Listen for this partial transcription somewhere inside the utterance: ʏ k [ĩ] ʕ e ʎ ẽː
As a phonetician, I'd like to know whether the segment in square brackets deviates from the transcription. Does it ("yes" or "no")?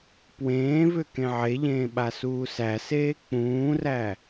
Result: yes